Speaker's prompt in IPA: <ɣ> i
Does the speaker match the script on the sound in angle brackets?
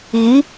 yes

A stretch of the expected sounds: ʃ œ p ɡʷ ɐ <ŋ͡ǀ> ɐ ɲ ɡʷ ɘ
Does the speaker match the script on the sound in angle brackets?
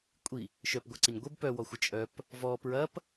no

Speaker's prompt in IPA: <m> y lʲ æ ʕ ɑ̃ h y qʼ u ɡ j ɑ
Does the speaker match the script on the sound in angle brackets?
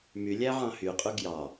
yes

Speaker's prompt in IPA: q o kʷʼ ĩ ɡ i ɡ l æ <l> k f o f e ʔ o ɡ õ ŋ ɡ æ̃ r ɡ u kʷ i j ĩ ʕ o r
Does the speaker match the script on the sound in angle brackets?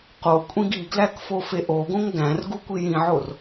no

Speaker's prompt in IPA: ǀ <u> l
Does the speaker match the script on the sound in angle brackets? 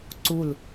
yes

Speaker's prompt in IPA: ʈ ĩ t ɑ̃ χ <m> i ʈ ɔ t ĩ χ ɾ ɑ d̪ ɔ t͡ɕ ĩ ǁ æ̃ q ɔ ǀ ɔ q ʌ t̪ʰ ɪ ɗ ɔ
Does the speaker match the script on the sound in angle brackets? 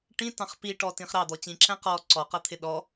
no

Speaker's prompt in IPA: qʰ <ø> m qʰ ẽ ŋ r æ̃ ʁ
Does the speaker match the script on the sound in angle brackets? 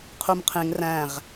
no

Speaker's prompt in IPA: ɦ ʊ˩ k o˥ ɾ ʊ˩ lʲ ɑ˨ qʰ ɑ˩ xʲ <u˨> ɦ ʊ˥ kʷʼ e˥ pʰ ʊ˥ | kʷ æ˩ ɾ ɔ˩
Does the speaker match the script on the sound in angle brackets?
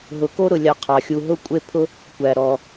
yes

